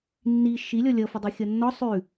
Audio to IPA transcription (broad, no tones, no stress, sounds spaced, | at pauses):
nː i ʃ i lʲ ɔ lʲ ʌ f ʌ dˤ i xʲ ʌ nː ɔ sˤ ʉ